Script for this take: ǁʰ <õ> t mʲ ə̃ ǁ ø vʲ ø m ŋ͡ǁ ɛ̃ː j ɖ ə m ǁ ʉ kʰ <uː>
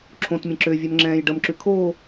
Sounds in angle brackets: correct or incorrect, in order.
correct, incorrect: oː

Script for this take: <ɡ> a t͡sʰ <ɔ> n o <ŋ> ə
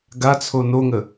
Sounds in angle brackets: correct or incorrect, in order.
correct, incorrect: o, correct

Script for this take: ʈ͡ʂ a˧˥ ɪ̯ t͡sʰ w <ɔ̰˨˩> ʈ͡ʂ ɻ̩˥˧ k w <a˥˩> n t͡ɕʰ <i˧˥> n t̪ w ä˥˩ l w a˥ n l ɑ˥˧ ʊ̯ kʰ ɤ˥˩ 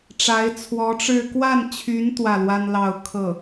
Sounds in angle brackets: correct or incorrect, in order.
incorrect: ɔ˧˥, correct, incorrect: y˧˥

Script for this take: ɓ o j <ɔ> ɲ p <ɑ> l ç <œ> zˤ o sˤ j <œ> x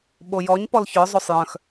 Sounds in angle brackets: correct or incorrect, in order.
correct, incorrect: ɔ, correct, incorrect: œ̃

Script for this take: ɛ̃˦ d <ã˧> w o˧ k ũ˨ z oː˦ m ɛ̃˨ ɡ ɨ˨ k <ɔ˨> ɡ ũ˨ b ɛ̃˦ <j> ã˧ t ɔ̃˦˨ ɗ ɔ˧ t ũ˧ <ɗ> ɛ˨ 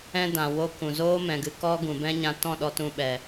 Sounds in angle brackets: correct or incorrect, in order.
incorrect: ã˨, incorrect: ɔ˦, incorrect: ɲ, incorrect: ɓ

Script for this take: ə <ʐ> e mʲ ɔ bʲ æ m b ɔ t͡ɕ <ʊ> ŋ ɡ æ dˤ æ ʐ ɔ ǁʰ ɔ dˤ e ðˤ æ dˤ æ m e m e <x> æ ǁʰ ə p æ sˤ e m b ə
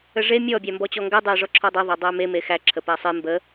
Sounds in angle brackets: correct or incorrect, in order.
correct, incorrect: ɔ, correct

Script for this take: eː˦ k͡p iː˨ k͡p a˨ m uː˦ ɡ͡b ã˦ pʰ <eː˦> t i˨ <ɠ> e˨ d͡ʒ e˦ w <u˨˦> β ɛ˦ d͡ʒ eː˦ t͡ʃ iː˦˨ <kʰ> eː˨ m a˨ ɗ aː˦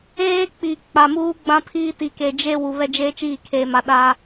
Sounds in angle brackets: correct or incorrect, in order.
incorrect: iː˦, incorrect: k, incorrect: u˨, correct

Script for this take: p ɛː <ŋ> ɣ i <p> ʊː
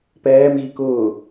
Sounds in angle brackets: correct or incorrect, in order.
incorrect: m, incorrect: k

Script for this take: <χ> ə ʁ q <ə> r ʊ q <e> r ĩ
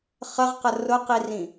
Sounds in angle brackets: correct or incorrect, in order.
correct, correct, incorrect: i

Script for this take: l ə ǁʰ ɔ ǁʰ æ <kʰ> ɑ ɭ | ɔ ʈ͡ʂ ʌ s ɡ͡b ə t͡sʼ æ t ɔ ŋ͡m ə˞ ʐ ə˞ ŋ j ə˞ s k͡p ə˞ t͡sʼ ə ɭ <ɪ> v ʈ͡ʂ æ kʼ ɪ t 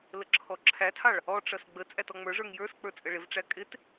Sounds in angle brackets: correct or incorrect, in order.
incorrect: tʰ, correct

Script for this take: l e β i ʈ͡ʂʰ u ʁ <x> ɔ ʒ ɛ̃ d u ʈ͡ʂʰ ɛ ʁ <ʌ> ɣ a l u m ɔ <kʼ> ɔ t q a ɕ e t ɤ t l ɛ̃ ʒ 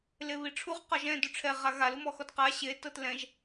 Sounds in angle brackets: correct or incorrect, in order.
incorrect: q, incorrect: a, incorrect: x

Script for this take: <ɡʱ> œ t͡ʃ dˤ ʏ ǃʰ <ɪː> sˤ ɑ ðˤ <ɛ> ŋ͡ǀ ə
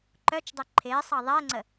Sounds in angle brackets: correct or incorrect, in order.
incorrect: ǃ, correct, correct

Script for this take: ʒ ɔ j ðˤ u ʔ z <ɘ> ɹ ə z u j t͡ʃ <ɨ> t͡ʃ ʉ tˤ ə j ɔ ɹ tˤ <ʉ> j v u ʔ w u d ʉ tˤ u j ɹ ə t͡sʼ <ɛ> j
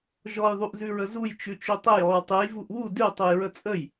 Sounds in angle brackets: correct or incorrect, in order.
incorrect: ʉ, incorrect: ʉ, incorrect: ɨ, incorrect: ə

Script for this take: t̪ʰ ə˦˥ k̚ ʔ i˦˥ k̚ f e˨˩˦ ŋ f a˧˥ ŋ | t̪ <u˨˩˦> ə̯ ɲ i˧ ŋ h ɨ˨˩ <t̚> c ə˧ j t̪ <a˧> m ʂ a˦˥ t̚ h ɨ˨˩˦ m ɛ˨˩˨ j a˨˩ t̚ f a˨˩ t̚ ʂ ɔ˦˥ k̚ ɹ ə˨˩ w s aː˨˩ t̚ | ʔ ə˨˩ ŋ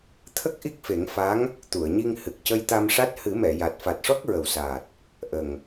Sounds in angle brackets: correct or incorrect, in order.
incorrect: u˨˩˨, incorrect: k̚, correct

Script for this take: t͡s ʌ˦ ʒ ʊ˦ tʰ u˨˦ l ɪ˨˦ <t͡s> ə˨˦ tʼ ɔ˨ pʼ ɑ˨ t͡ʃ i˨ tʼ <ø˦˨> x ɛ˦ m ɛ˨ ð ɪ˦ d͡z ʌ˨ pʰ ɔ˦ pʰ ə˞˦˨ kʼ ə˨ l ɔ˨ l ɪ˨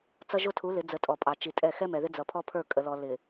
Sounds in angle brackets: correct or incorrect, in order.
incorrect: d͡z, incorrect: ɛ˦˨

